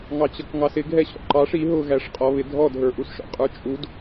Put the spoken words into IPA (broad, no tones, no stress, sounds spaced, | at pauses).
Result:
ŋ ɑ t͡ɕ ʌ k ŋ ɑ s ɪ ɡʱ ɛ ɕ ɔ̰ ǃ ɑ ʂ i ɦ ʊ ɣ æ ʂ qʼ ɔ β ɪ dʱ ɔ dʱ ə˞ ʔ u s ʃ ɔ̰ qʼ ə˞ t͡ʃʼ u d